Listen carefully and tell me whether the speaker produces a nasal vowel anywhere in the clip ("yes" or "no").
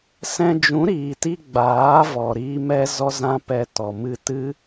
yes